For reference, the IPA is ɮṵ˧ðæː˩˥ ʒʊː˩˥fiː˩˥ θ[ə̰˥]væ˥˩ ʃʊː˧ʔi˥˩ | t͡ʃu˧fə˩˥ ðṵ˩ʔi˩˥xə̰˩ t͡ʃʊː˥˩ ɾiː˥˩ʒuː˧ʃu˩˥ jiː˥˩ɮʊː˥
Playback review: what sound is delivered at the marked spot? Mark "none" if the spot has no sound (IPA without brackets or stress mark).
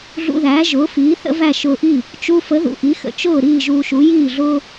ə̰˥